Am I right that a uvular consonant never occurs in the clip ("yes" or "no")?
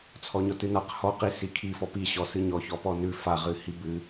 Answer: no